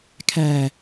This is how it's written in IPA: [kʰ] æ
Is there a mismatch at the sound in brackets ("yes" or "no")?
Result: no